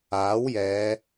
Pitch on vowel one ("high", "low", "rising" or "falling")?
rising